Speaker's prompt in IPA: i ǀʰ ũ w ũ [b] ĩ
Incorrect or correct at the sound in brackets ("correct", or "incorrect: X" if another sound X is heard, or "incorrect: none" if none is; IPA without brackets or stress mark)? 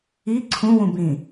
correct